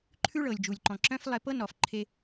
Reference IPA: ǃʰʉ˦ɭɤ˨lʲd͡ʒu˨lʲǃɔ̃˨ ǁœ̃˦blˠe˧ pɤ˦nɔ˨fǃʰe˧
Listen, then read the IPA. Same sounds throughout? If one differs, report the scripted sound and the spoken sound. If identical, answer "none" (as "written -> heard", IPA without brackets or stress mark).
b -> f